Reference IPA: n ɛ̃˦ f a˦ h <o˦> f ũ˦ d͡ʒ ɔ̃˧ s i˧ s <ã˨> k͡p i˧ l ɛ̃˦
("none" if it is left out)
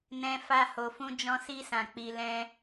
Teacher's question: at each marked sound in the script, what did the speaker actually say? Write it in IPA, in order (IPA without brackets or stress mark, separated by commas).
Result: o˧, ã˨